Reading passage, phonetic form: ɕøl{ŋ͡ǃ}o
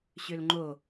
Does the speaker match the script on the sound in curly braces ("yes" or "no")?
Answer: yes